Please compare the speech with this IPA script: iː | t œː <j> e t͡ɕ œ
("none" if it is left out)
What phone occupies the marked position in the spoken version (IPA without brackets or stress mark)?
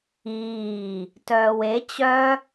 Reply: w